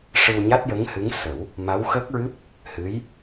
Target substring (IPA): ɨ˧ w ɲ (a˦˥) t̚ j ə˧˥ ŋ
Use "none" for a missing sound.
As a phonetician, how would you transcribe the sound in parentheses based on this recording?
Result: a˦˥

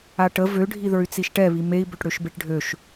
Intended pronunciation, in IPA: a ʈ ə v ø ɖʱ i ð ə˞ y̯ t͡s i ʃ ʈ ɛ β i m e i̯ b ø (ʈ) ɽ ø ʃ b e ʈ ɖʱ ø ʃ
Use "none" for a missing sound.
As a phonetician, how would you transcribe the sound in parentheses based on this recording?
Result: ʈ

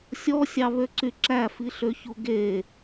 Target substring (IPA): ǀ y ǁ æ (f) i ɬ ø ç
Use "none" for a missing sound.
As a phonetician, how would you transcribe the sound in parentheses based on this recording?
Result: f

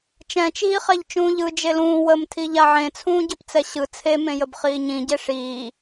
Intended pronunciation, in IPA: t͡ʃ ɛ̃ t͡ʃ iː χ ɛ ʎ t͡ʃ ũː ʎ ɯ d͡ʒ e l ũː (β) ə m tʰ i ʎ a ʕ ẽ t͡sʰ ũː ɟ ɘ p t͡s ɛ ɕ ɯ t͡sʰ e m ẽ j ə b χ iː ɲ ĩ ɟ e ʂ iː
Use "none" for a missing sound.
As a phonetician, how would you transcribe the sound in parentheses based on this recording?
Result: w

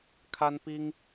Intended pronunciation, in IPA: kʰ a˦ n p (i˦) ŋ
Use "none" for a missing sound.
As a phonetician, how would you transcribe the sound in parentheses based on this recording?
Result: i˦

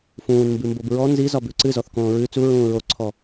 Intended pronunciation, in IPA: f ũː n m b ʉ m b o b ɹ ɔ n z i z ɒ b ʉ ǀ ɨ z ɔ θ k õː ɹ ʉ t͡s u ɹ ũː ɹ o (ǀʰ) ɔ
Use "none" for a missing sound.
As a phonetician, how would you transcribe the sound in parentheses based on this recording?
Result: ǀʰ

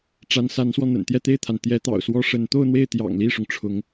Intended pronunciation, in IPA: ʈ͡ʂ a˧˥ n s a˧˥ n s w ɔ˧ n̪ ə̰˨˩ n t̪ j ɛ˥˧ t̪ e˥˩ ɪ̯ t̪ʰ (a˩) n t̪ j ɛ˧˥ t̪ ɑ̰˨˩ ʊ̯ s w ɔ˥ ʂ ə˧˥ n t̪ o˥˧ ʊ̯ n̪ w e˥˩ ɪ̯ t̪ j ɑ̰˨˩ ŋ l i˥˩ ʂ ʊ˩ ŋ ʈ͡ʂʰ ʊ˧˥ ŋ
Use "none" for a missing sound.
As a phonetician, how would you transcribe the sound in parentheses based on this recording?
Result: a˩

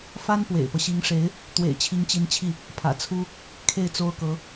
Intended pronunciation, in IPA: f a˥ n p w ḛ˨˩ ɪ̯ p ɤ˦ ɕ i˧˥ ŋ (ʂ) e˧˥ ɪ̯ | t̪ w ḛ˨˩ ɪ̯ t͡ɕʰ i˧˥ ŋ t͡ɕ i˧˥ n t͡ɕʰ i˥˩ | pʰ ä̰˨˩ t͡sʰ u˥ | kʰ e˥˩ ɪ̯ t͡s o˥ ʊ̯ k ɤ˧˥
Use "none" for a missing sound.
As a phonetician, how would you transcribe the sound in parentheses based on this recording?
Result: ʂ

